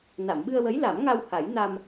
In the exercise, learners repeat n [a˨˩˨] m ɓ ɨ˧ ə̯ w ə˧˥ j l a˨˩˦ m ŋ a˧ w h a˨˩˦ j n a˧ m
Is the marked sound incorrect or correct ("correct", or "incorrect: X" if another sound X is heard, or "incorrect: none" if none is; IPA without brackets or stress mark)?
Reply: correct